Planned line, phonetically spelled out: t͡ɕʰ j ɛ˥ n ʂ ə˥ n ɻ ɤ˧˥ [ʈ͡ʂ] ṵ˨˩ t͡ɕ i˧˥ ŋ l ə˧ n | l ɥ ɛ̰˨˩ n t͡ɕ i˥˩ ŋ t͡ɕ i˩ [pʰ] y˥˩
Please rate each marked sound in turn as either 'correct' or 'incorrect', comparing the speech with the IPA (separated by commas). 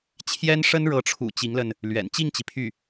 incorrect, correct